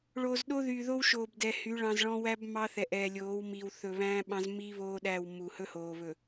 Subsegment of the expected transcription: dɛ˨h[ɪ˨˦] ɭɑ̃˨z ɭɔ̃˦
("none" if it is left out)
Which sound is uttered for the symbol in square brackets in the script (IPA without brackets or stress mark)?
y˨˦